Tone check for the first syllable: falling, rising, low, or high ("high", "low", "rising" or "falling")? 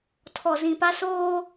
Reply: low